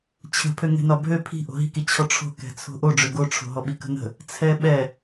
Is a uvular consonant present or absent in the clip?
absent